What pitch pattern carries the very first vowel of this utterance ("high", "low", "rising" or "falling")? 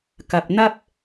low